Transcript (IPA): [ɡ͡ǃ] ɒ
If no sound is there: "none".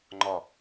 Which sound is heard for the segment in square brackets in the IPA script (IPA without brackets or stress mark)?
ŋ͡ǃ